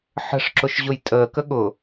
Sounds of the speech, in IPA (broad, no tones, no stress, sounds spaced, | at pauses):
ħ ə̤ ʂ ǁ ʊ ʃ ʑ ʊ j tʼ əː k ə ɠ ʊ